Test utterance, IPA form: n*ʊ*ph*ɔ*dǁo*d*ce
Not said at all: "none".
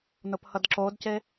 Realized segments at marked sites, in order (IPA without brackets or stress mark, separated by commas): ʊ, ʌ, d